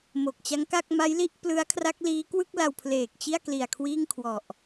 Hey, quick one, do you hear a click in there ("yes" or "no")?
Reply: no